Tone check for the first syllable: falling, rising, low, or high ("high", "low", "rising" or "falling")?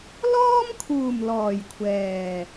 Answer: high